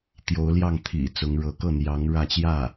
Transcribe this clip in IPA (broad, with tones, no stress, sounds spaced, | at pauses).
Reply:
t̪ j o˧˥ ʊ̯ l j ɑ˥˩ ŋ t̪ʰ ḭ˨˩ t͡s ʊ˧˥ ŋ ɻ ɤ˧˥ k ɤ˥˩ n̪ j ɑ˧˥ ŋ ɻ ä˥˧ t͡ɕ j ä˥˩